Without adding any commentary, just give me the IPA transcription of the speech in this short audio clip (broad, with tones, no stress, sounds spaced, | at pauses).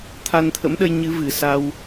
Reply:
t̪ʰ a˧ n t̪ʰ ə̰˧˥ m ɗ ə˧ j ɲ ɨ˨˦ v ɨ˨˩ s a˧ w